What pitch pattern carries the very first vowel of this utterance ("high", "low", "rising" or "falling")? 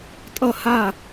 falling